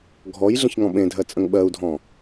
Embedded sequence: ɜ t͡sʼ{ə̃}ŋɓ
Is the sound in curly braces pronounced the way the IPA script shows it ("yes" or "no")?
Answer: yes